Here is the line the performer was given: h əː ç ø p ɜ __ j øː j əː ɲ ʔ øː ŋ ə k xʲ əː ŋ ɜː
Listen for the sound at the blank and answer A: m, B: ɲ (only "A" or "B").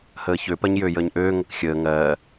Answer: B